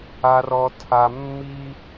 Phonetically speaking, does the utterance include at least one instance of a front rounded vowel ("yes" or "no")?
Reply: no